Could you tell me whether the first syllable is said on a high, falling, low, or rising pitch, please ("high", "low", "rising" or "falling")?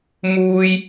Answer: high